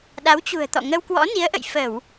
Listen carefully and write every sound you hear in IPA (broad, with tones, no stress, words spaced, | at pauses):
ɗa˨˦wt͡ɕṳ˨˩ə̯t̪ɔ̰˧˨ ŋə˧wkwɔ̰˧˥ni˨˦ə̯ʔə̰˧˨j fə˧˩˨w